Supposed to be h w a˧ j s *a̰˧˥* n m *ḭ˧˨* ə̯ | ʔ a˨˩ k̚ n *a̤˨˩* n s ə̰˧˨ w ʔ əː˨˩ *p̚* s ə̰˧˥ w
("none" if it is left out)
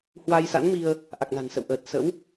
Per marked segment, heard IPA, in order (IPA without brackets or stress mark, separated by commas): a̰˧˥, i˧, a̤˨˩, t̚